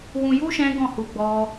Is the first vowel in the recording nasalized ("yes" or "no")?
yes